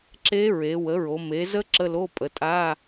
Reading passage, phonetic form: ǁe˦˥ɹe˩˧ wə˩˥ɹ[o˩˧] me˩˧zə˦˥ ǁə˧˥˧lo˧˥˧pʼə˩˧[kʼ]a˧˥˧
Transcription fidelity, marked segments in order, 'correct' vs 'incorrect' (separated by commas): correct, incorrect